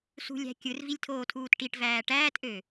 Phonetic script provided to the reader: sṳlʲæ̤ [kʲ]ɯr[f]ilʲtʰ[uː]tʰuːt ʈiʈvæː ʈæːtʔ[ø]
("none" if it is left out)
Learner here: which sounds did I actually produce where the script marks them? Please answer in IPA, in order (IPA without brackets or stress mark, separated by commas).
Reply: kʲ, v, oː, ø